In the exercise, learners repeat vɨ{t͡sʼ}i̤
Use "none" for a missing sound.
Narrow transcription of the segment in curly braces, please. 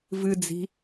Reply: d͡z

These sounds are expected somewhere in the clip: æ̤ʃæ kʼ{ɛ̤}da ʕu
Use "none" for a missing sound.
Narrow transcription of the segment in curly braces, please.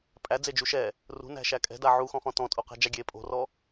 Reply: ɛ̤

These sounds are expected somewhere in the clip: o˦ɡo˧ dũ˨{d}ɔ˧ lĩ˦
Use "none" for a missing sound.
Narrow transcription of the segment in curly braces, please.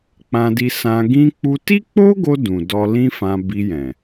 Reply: d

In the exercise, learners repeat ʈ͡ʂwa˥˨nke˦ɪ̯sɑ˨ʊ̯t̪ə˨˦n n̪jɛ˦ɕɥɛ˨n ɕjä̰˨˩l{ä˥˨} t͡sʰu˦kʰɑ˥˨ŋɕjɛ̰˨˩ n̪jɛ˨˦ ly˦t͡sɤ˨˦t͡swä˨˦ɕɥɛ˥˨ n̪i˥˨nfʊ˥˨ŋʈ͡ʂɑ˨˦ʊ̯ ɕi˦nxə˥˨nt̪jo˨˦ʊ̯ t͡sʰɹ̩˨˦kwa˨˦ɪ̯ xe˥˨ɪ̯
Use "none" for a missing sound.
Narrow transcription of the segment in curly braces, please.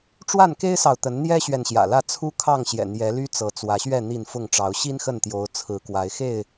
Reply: ä˥˨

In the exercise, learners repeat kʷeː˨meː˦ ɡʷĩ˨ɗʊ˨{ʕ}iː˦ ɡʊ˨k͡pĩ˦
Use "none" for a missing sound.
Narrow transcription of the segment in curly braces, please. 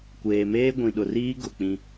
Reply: r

